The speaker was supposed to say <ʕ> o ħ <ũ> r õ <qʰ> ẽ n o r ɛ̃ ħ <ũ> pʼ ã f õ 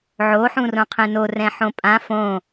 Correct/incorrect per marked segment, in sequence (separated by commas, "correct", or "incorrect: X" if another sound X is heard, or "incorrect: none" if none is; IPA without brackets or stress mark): correct, correct, correct, incorrect: õ